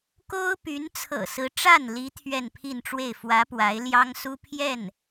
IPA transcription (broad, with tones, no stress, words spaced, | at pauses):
ko˥ʊ̯py˧˥n t͡sʰɤ̰˨˩sɹ̩˧˥ ʈ͡ʂa˥˩nli˧˥ t̪ʰɥɛ˥˧npʰi˥˧nʈ͡ʂwe˥˩ɪ̯ fwä˧˥ pwa˧˥ɪ̯ljɑ˥ŋ su˥pʰjɛ˥˩n